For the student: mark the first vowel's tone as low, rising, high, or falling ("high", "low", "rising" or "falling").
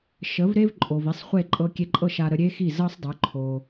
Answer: rising